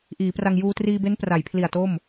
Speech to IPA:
ʔ iː˩˦ p r a˧ ŋ j uː˧ t r iː˧ b e˦˥ n p r a˩˦ j pʰ l i˨˩ a̯ t o˥˩ m

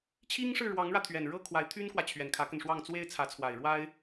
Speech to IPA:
t͡ɕʰ i˥ ŋ ʂ ɻ̩˥˩ ɻ w ɑ˧˥ ŋ ɻ ä˧ t̪ʰ ɥ ɛ˨˩ n ɻ ɤ˥ kʰ w a˧˥ ɪ̯ t̪ʰ y˥ n k w ä˨ t͡ɕʰ ɥ ɛ˨˩ n kʰ ä˧˥ k ə˧ n ʂ w ɑ˥˩ ŋ t͡s w e˥ ɪ̯ t͡sʰ ä˧˥ t͡sʰ w a˨˩ ɪ̯ ɻ w a˥ ɪ̯

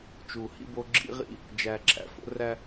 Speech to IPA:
t͡ʃ u˨ h ḭ˦ b o˦ ɡ͡ǁ ḭ˦ ʁ ḭ˦ | d͡ʒ æ˨ ǁʰ æ̰˨ f o̰˦ r æ˦

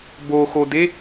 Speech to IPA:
b o x o d e

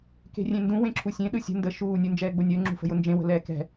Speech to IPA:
k e̤ rʲ ẽ n d ũ w ẽ ǁʰ u sʲ ẽ ɗ ɯ sʲ ə̤ n d ə ʃ uː nʲ u n d͡ʒ ɛː ɡ͡b ʊ nʲ əː ŋ͡ǁ ṳ f ə̤ j ʊ n d͡ʒ ẽ w ə̤ l ɛː k ɛ̤

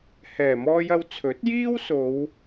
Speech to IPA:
h ɛː˨˩ m ɔː˧ j ɐ˧ w t͡sʰ ɵ˨˥ t̚ j iː˥ w s o˨˧ w

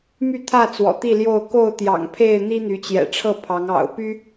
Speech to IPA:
m y˥˨ t̪ʰ ä˥˨ t͡s w ɔ̰˨˩ t̪ i˥˨ l j o˥˨ ʊ̯ k o˥˨ ʊ̯ t̪ j ɑ̰˨˩ ŋ pʰ e˥˨ ɪ̯ n̪ i˦ n̪ y˨˦ t͡ɕ j ɛ̰˨˩ ʈ͡ʂʰ ɤ˥˨ pʰ ɑ˨˦ ŋ ɑ̰˨˩ ʊ̯ p y˦

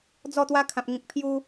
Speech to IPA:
d͡z ɔ˥˧ t̪ w a˦ kʰ ã˨ p̚ ŋ ĩ˨ k̚ pʰ j u˧

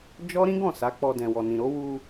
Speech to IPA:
d͡ʒ ɔ˦ ɾ ĩ˦ ɡ ɔ̃˦˨ s a˨˦ k͡p ɔ˧ d ɛ̃˨ w ɔ˨ n ĩ˨ ɾ o˨˦ w u˧

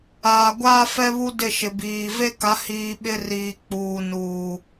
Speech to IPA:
aː˨ ɡʷ aː˦ f ɛ˦ β u˦ d ɪ˦˨ ʃ ɪ˨ b iː˨ v e˦ k a˨˦ h iː˨ ɓ ɪ˦ r iː˨ k͡p uː˨ n uː˨

